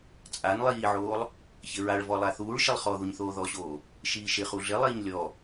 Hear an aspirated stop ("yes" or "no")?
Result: no